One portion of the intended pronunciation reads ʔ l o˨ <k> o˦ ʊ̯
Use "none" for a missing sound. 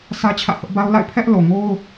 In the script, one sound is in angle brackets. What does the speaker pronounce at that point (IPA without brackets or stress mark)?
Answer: ŋ